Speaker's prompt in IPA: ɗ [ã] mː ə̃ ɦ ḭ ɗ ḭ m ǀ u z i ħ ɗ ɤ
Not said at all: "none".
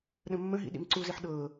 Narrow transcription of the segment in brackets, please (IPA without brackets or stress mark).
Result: ə̃